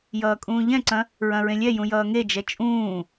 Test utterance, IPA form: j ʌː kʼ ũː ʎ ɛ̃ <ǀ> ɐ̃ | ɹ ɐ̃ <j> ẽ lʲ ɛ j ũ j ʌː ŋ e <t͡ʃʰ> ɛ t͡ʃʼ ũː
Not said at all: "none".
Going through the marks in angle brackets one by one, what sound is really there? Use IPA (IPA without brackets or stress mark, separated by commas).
ǀ, ɹ, d͡ʒ